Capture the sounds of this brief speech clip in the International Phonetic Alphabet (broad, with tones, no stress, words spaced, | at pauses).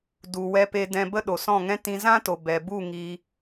du˨ wɛ˧pe˧ dɛ̃˧bə˦ ɗo˨sɔ̃˦˨ŋɛ̃˦ tĩ˧zã˦to˨ bɛ˨bu˦˨ ŋi˧